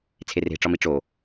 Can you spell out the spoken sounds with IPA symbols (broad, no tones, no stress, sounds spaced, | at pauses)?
t͡sʰ e r e̤ ʈ͡ʂ ɒ m i ʈ͡ʂ o